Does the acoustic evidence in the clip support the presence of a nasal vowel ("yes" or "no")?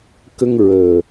no